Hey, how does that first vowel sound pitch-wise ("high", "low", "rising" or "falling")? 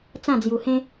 falling